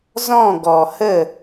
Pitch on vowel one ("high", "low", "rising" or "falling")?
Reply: falling